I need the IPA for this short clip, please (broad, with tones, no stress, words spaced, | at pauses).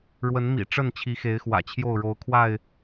ɻwə˨˦nmḭ˨˩ʈ͡ʂə˥˨n t͡ɕʰi˨˦xe˨˦ɪ̯xwä̰˨˩t͡ɕʰjo˥˨ʊ̯ ɻo˨˦ʊ̯kʰwa˥˨ɪ̯